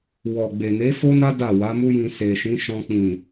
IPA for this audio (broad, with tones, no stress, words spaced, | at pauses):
wɔ˨ ɡ͡be˨ ne˨˦fo˦na˦ da˦˨wa˨˦mu˦jĩ˧ se˨ʃĩ˨˦ ʃɔ̃˧k͡pĩ˨